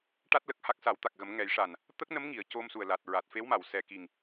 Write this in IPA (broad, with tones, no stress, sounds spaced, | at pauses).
ʈ a˦˥ t̚ l ə˨˩ k̚ h a˦˥ k̚ s a˨˩˦ w t̪ a˨˩ k̚ ɣ ə˨˩˦ m ŋ ɛ˨˩˦ j ʂ a˨˩ n | t̪ ə˦˥ k̚ n ə˧˥ m ŋ i˨˩˨ ə̯ c o˧ m s u˨˩ ə̯ l a˨˩ t̚ ɹ a˨˩ t̚ f e˧˥ w m a˨˩˨ w s ɛ˨˩ k i˨˩ ŋ